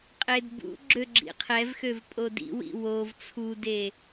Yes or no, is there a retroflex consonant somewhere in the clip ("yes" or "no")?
no